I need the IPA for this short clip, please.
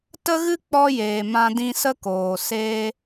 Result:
t ə˦ ɣ ɨ˦ k͡p ɔ˧ j eː˨ m ã˧ d ĩ˧ s ə˦ k oː˨ s eː˧

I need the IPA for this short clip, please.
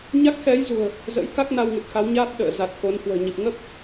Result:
ɲ a˦˥ k̚ x ɛ˨˦ j z ṳ˨˩ ə̯ | z ə̰˧˥ j k a˦˥ k̚ n a˧ w ŋ ɨ˨˩ t̚ x a˨˦ w ɲ aː˦˥ p̚ ɗ ə̰ː˧˨ z a˨˩ t̚ k o˨˦ n h w ə̤ː˨˩ ɲ i˨˩ p̚ ŋ ə˦˥ p̚

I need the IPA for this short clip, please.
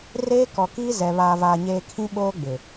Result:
r eː˦ k ɔ˨ k iː˦ z ɛ˨ β aː˨ v aː˨ ɲ eː˨ kʰ ĩ˦ ɓ oː˦ ɡ͡b ɪ˨

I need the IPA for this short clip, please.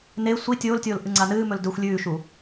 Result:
n e sʷ i tʲ oː l tʲ oː l ʔ ɨ ŋ͡ǀ a n ɨː m ɵ l d ɵ xʷ lʲ ʉː ʃ u

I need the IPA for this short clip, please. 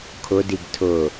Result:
kʰ ʊ d i ɡ tʰ ʊ

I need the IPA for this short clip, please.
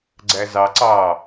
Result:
ɡ͡ǀ æ z ɑ ǀ ɑ

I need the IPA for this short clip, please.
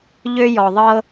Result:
ʎ ø˦ j ɔ˨ ðˤ ɤ˦

